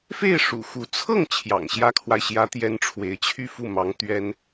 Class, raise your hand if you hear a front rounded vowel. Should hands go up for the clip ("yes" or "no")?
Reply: yes